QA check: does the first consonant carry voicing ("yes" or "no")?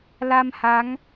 yes